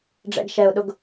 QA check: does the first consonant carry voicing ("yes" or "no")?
yes